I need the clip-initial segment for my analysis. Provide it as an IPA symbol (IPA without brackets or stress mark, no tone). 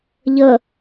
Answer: ʎ